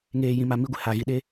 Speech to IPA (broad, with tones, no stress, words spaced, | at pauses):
ŋeː˨ jĩ˨ma˨ mi˦ɡʷɪ˨ ha˨ɣi˨ ɗe˦